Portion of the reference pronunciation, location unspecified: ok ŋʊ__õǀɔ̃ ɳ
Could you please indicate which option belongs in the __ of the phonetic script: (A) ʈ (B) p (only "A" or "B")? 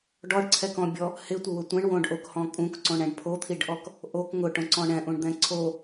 A